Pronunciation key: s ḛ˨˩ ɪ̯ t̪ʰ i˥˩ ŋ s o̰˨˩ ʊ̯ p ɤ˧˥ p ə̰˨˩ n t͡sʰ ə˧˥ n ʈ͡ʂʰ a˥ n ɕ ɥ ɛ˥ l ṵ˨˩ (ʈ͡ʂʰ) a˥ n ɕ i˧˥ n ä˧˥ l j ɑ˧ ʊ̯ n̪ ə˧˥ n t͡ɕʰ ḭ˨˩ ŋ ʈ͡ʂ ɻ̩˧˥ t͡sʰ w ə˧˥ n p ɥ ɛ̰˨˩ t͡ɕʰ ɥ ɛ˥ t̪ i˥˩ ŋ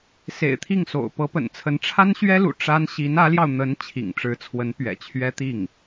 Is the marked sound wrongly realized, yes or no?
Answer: yes